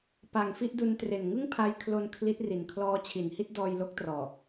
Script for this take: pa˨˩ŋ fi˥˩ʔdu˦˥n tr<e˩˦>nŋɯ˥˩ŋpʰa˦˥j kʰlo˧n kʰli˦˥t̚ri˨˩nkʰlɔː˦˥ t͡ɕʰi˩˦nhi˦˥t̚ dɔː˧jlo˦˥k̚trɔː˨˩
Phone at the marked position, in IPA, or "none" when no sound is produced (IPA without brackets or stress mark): e˨˩